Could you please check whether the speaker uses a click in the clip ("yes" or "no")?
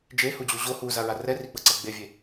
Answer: yes